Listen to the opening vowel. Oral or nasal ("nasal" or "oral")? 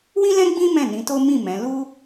nasal